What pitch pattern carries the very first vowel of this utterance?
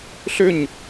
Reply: falling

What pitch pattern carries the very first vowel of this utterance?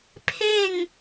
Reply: falling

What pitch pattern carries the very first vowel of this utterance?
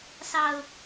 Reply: low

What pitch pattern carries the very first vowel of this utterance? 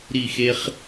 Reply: falling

